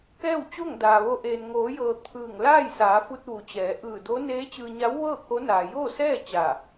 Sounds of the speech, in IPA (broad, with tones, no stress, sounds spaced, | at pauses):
k ɛː˥˨ w t͡ɕ o˥˨ ŋ d aː˩ ʋ o˧ ʔ eː˩ n ŋ oː˩˧ j ɤː˩ t̪ʰ ɯː˧˩ ŋ l aː˥˨ j s aː˩˧ f u˧ t̚ ʋ u˩ t͡ɕ ɛː˩˧ ʔ ɯː˧˩ d o˧˥ n eː˧˥ t͡ɕ ɯː˧ ɲ a˧˥ w ʋ ɤː˥˨ k o˧˥ n aː˩ j oː˥˨ s ɛː˥˨ t͡ɕ a˧˩